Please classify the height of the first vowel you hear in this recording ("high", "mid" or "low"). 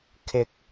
high